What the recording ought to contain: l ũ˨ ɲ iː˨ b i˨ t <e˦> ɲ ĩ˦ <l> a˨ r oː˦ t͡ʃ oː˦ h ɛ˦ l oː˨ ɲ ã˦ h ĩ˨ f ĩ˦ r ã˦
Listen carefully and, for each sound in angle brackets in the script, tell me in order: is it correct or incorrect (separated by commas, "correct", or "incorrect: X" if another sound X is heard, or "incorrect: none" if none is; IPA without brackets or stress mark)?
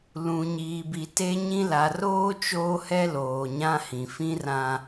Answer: correct, correct